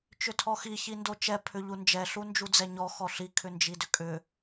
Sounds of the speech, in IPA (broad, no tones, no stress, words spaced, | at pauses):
t͡ʃʏtʰɔxi çindot͡ʃɛ pʰʏʎund͡ʒɛ ɬund͡ʒud͡zɛɲɔ xɔɬi kʰʏnd͡ʒidʏkʼʏ